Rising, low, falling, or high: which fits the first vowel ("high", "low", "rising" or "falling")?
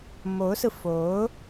rising